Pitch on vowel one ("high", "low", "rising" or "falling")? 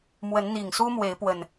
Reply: rising